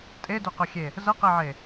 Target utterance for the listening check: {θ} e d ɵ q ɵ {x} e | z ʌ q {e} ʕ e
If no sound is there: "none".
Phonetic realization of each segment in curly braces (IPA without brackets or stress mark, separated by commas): tʼ, xʲ, e